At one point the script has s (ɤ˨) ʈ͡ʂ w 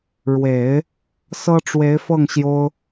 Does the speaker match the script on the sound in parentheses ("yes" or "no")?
no